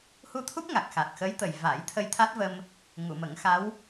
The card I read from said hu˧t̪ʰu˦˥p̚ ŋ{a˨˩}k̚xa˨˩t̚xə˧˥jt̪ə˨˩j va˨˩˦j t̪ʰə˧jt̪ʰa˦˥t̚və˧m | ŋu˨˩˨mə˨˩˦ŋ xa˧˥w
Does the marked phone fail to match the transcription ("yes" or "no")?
no